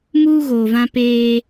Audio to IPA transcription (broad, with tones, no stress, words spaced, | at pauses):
muː˦ɣoː˨vã˦peː˦